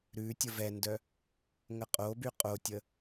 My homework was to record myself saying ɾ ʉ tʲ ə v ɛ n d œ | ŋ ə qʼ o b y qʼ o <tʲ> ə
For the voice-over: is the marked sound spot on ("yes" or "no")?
yes